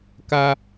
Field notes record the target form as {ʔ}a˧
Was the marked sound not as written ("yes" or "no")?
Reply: yes